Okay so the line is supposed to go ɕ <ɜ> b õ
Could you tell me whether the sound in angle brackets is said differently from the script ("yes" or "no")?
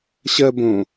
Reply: no